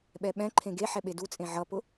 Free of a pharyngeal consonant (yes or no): no